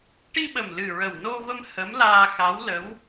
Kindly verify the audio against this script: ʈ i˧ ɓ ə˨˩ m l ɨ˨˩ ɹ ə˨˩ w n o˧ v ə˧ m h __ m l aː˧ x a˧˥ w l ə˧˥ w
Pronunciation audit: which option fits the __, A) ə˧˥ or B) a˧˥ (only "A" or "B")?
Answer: A